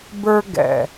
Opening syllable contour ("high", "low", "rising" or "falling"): high